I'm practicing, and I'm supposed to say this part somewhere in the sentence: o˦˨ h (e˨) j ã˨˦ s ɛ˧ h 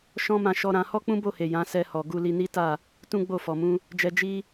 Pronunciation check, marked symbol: correct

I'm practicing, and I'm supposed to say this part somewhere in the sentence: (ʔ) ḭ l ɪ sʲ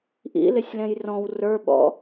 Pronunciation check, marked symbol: correct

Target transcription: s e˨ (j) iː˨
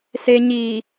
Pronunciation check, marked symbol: incorrect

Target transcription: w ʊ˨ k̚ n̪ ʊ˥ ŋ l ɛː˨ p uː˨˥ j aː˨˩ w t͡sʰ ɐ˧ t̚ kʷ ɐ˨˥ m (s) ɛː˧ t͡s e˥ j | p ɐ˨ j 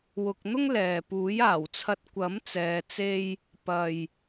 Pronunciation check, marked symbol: incorrect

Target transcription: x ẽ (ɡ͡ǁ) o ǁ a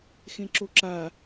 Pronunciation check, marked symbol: incorrect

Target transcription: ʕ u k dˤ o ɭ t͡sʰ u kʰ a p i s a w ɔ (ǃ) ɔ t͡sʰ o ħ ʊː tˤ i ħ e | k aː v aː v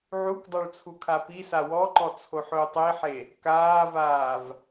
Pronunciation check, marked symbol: correct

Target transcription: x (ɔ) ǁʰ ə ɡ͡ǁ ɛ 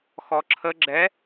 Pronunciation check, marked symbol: correct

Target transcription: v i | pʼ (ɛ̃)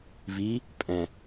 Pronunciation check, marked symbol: correct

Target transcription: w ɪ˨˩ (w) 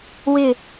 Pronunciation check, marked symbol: incorrect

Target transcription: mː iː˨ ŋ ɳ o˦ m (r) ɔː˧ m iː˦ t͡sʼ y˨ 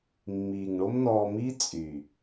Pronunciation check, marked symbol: incorrect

